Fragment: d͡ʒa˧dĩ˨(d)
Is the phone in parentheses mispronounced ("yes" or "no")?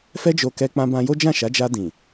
yes